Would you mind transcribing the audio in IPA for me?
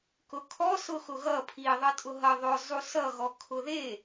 k ʊ kʰ ɔ s ʊ x ʊ ɣ ʌ pʰ i ðˤ ʌ tʼ ʊ ɦ ʌ ðˤ ʊ zˤ u s ʌ ɣ ɔ kʰ ʊ ð e

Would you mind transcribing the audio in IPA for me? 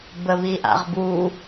b ə β i ʔ a̰ ʁ b u

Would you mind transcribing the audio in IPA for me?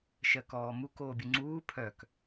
ʃ ɜ k ɔː m u k oː bʲ u ŋ͡ǀ uː pʰ œ k

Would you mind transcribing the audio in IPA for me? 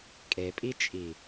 kʼ e pʼ i t͡ʃʼ i

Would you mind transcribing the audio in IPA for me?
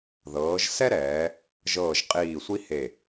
ð ɤː˩˧ ʒ s ɛ˥ ɾ ɛː˩˧ | ʒ ɤː˧˩ ʒ qʼ iː˧˩ sʷ i˥ h e˧˩

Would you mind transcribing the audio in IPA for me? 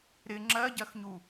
ɾ ɪ ŋ͡ǁ ɜ ɟ ɜ x ɲ u

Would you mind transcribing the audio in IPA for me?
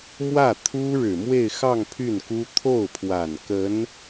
m w ä˥˩ t̪ʰ u˥ ɻ ɻ̩˨˩ m w e˥˧ ɪ̯ x ɑ˥˧ ŋ pʰ y˥˩ n k u˥ t̪ʰ o˥˩ ʊ̯ pʰ w a˨˩ n k ə˧˥ n

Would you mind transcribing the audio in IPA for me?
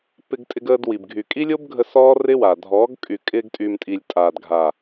p ɪ˧ ɡ tʼ ɪ˧ ɡ əː˧ d w i˨ b ɡʱ y˨ kʼ i˦ lʲ o˦ b ɡʱ ə˧ s ɔː˦ r ɪ˦ w a˨ dʱ ɔː˨˦ ɡ kʼ y˨ kʼ ɪː˧ ɡ tʼ y˨ m tʼ i˨ lʲ tʼ aː˨ d ɡʱ a˨

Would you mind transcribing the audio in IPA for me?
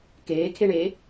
k eː kʰ e ɳ eː

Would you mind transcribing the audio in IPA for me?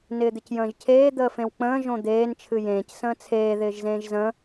n ɪː d̪ ɪ c j ə̃ː ʒ cʰ eː d̪ əː f ẽ w k͡p ə̃ː ʒ õ d̪ eː n t͡ʃʰ ɨ j ẽː c s ə̃ː t͡sʰ eː ð ɪː ʒ z ẽː ʒ z ə̃

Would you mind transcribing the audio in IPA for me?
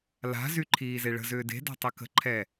l a̤ z y ǃʰ iː z e ɭ ə̤ z ʏː d e̤ d a̤ tˤ ə k ə̤ ǃʰ ɛ

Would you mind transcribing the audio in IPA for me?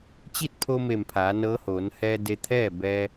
t͡ɕ i˥˨ t̚ pʰ o˧ m e˧˩ m pʰ aː˩˧ n ɤː˧˥ h oː˩˧ n h ɛː˧ d e˧ t̪ʰ ɛː˥˨ b ɛː˧

